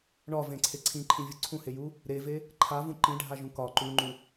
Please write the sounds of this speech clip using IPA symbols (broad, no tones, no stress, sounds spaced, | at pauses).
ɳ ɒ v ẽ ǀʰ e ǀʰ ĩ ǃʰ ĩ vʲ u ǀʰ ũ h e j u | ɾ e v e | ǃʰ a v ũ ǃ ĩ ɖʱ a ʒ ũ k ɒ ǃ u ŋ͡ǃ u